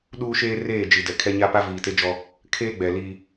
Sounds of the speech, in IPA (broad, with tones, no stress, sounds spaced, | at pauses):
ɗ uː˦ ʃ eː˦ r eː˦˨ d͡ʒ i˨ d ɛ˨ kʰ ɛ˦ ɲ a˦ p a˦ v iː˨ t e˦ d͡ʒ ɔ˦ | kʰ eː˦ ɡ͡b ɛ˨ l i˦